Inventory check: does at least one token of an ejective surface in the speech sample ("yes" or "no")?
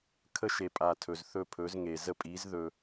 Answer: yes